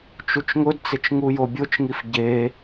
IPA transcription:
t͡ʃ u t͡ʃ ŋ ʊ d t͡s ɪ t͡ʃ ŋ u j o bʲ o t͡ʃ ŋ i f ɟ e

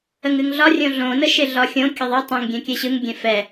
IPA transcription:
ə ŋ ɨ ŋ ɮ ɒ rʲ õ ɮ õ n ə ʃ e ɮ ɒ xʲ õ kʲ ə ðˤ ɯ tˤ ə̃ ŋ ɡʲ ɛ̃ kʲ ɛ ɕ ɯ ŋ ɡʲ ɛ̃ f ɛ

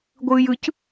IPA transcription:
ɡʷ ɯː j ɯ c

